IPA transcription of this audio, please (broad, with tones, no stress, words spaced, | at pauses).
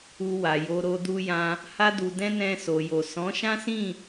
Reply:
u˧wa˨jo˧ɾo˧ du˧jã˧ | ha˧du˨dɛ̃˧ nɛ̃˧so˨jo˨ sɔ̃˨˦ʃã˦sĩ˦˨